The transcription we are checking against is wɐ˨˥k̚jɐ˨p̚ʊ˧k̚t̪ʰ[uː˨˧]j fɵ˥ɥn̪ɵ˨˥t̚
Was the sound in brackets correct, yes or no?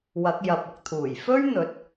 no